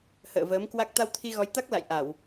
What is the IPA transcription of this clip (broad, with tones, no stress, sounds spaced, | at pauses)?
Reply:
h ə̰ː˧˨ v əː˨˦ m k w a˦˥ k̚ t̪ a˧ w t̪ʰ i˧ ɣ ɔ˨˦ j t̪ a˦˥ k̚ l a̰˧˨ j ʔ a˧˩˨ w